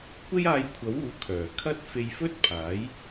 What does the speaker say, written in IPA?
kʷ e˥ j aː˧ j kʷʰ ɐ˨˥ w uː˨˥ kʰ œː˨˩ kʰ ɐ˥ t̚ f e˧ j f ɵ˥ t̚ pʰ aː˨˥ j

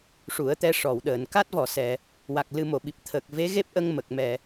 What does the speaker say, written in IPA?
ʂ u˨˩˦ ə̯ t̪ ɛ˧ ʂ ɔ˨˩˨ w ɗ əː˨˩˨ n k a˦˥ t̚ v ɔ˨˩˨ s ɛ˨˩˨ | w a˨˩ k̚ l ɨ˧ m o˨˩˨ ɓ i˨˩ p̚ t̪ʰ ə˨˩ k̚ v e˧˥ ɣ e˦˥ p̚ ʔ ə˧ ŋ m ə˨˩ k̚ m ɛ˨˩˨

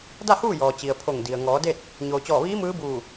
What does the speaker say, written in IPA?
d a˥˨ h uː˥˨ j ɔː˩ t͡ɕ i˩ ə̯ pʰ o˧˩ ŋ d i˩ ə̯ ŋ ɔː˩˧ d e˥˨ t̚ | ɲ oː˩ t͡ɕ ɔː˧˩ ʋ iː˧˥ m ɯː˧˥ b uː˧˩

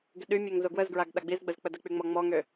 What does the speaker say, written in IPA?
ɡ ɪ ɗ y mʲ a ŋ z o ɡ w ə z ɡ ɹ a ɡ ɗ a ɡ͡b i z ɡ͡b ə z k͡p ə d ə k͡p y ŋ͡m ɔ ŋ͡m ɔ ŋ ø

